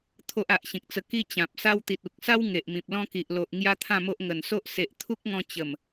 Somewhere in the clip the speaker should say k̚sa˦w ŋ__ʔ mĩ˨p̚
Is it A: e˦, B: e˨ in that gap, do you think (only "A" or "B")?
B